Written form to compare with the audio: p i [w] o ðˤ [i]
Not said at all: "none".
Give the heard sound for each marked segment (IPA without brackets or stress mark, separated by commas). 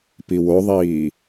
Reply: w, iː